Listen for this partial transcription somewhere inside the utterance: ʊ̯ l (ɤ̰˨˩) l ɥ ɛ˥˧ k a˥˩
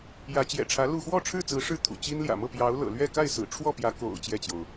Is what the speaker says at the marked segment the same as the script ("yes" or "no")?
yes